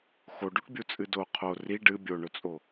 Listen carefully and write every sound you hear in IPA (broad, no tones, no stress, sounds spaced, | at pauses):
x o ɖ u ʈ bʲ u t͡sʼ ɨ d o qʰ o r i ɖ ɨ bʲ o ɳ ɵ t͡sʼ o